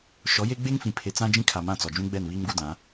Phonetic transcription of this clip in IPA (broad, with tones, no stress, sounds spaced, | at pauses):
ʃ ɔ˨˦ j e˦ ɡ͡b e˦ ŋ f ĩ˨ pʰ e˨ t͡s ã˦ d͡ʒ ĩ˦ kʰ a˨ m ã˦˨ t͡s ɔ˨ d͡ʒ ũ˦ ɡ͡b ɛ˦˨ n β iː˦ m ɡ u˦ d ã˨˦